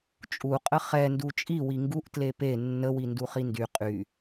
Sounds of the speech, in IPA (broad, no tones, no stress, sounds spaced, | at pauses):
t͡ʃʼ u qʼ ə χ ɛ n d u t͡ʃʼ i w i ŋ ɡ u ʔ t l e p e nː ə w i n d u χ i n d y qʼ y